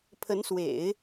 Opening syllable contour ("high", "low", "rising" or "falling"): rising